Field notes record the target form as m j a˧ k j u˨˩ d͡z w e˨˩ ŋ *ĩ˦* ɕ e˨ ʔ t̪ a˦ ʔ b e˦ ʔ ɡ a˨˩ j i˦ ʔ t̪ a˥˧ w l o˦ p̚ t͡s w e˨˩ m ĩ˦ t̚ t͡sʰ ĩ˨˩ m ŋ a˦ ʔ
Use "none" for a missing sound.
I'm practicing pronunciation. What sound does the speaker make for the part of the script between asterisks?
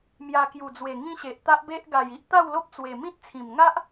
ĩ˦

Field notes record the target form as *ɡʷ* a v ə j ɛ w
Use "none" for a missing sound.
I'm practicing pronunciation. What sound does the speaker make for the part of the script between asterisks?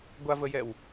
ɡʷ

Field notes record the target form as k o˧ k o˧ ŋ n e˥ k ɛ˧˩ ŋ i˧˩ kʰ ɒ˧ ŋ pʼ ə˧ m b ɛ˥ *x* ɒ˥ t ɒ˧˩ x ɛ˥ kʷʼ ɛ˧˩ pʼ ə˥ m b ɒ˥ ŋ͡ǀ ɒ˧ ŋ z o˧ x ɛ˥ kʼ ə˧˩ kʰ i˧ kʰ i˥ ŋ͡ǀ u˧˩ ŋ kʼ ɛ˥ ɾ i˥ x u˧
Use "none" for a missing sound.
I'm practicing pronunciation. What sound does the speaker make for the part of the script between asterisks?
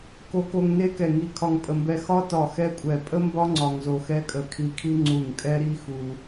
x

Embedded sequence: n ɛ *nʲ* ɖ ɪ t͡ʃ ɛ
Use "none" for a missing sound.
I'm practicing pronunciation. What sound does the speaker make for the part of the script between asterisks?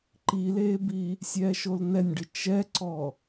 nʲ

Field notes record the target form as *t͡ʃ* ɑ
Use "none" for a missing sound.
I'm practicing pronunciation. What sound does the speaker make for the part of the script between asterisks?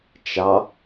t͡ʃ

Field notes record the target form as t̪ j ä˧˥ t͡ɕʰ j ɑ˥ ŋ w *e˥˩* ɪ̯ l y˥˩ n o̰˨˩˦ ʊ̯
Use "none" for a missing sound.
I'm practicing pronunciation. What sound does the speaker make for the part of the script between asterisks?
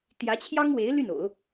e˧˥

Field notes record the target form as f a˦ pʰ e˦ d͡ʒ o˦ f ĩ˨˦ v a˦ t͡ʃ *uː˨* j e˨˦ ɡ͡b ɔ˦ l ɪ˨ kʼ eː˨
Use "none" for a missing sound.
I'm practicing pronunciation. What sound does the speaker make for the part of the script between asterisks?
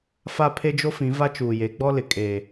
uː˨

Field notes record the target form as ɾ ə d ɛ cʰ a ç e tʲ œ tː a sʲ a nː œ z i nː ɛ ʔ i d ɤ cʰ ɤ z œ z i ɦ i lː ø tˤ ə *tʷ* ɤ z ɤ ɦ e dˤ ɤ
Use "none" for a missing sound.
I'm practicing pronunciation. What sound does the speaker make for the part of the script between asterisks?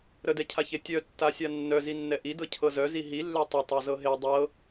tˤ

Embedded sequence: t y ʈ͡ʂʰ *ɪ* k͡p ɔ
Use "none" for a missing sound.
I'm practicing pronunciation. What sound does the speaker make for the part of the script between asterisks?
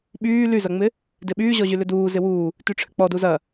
ʏ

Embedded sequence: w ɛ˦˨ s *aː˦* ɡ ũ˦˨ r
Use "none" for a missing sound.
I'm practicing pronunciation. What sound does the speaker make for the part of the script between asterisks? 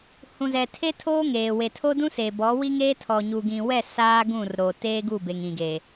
aː˦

